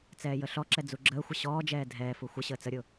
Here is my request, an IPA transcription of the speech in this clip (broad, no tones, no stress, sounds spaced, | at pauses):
t͡s ɛː j ə ɬ ɔ ǁ ɛ d͡z u ɡ͡ǁ əː xʷ ə ɕ ɔː d͡ʒ ɛː dʱ ɛː f u xʷ ə ɕ əː t͡s ə ɾʲ ʊ